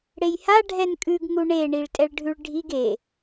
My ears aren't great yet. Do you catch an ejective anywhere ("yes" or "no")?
yes